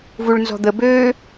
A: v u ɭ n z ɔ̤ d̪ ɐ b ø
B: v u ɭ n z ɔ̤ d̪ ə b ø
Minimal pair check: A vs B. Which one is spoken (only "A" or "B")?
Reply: B